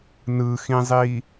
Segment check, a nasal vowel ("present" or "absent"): present